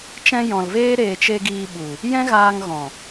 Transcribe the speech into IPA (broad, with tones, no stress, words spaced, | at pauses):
t͡ʃɛ̃˧ jɔ̃˨lveː˦ ɾeː˨t͡ʃe˧ ɡiː˧ɓu˨ | jɛ̃˦ɣaː˧ŋ ɣɔ̃˨